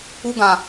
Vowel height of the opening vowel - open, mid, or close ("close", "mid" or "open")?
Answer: close